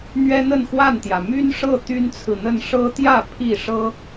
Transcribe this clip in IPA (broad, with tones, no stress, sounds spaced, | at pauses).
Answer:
n̪ ɥ ɛ˦ n̪ ə˥˨ n x w a˥˨ n t̪ j ä˩ m y˦ n ʂ ɤ˥˨ t̪ y˦ n t͡sʰ ɹ̩˨ n̪ ə˥˨ n ʂ ɤ˦ t̪ j ä˥˨ pʰ i˥˨ ʂ ɤ˦